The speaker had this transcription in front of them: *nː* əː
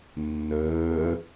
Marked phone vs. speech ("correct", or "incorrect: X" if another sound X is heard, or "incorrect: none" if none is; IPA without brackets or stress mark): correct